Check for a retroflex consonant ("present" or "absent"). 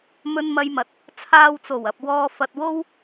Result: absent